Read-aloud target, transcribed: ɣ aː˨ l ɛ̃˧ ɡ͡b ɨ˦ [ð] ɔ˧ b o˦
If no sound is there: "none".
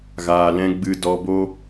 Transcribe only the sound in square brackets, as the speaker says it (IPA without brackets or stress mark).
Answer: d